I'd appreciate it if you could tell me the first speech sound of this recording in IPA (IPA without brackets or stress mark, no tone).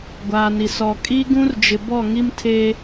ɡʷ